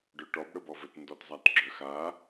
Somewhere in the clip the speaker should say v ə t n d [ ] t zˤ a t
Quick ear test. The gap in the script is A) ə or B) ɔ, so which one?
B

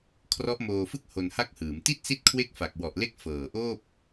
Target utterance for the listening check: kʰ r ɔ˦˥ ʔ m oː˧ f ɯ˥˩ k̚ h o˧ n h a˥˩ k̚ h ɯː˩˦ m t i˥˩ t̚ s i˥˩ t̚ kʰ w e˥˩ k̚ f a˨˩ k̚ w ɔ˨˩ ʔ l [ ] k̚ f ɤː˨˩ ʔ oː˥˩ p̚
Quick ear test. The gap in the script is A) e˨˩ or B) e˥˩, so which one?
B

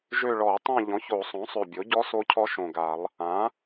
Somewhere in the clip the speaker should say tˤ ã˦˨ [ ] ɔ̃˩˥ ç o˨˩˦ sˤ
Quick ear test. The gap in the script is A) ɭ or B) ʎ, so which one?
B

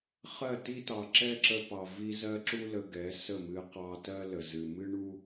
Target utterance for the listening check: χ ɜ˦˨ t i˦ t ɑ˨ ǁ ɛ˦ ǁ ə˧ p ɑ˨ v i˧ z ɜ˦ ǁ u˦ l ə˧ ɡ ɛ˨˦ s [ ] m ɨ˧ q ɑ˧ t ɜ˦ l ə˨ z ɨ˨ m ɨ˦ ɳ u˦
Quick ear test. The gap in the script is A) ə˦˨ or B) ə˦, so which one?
A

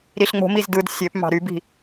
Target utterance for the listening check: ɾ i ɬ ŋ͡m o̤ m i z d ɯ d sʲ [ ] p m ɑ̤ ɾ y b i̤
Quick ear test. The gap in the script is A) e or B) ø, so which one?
B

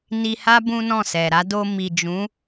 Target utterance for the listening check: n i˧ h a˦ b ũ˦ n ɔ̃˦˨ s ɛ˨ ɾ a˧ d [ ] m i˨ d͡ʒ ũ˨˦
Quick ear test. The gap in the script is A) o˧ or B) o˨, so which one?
A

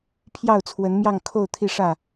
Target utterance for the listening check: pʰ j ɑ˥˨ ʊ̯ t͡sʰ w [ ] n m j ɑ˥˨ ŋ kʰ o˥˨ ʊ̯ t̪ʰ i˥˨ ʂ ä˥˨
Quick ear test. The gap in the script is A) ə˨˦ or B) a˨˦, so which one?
A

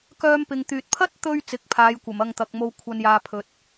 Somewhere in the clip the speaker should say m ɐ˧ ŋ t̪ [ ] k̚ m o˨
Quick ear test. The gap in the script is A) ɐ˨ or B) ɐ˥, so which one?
A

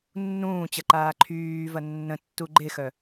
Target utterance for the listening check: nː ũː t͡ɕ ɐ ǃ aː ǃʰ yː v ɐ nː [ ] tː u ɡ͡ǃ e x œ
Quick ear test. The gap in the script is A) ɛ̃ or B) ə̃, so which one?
B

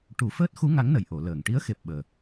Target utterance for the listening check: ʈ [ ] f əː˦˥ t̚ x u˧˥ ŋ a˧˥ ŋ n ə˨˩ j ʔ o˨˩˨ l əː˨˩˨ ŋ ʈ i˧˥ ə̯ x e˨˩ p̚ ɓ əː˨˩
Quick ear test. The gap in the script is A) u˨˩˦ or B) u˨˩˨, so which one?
A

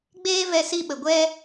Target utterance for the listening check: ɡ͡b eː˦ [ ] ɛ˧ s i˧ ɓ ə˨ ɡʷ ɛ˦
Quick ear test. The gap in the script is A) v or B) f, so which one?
A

